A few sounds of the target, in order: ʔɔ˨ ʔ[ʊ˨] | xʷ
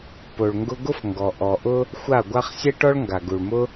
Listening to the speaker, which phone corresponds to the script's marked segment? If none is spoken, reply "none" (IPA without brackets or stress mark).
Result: ʊ˦